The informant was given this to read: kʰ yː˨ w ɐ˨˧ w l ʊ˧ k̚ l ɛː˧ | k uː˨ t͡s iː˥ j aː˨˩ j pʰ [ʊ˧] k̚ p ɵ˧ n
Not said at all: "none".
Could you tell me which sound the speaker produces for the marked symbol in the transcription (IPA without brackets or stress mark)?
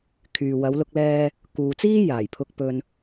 ʊ˧